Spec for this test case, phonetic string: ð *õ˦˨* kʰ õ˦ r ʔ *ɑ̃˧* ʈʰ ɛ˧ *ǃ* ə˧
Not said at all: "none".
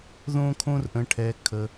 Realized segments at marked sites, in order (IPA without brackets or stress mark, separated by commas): õ˦, ə̃˧, kʰ